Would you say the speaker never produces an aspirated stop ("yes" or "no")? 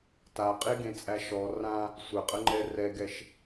yes